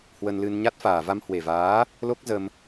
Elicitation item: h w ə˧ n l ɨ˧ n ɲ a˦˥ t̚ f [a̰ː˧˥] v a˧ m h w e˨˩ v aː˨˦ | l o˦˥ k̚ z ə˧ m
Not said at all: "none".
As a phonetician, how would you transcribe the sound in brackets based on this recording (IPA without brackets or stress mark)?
aː˨˩